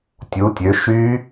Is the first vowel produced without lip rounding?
no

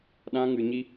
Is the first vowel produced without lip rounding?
yes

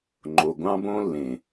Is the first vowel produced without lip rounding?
no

